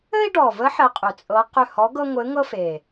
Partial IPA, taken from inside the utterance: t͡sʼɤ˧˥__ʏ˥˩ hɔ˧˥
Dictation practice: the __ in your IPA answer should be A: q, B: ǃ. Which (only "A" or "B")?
A